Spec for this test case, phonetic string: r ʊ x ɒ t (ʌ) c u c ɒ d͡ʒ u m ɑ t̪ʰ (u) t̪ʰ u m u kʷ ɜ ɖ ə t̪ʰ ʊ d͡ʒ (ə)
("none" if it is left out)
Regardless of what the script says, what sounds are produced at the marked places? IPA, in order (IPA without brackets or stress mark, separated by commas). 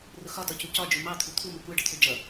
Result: ɒ, u, ʌ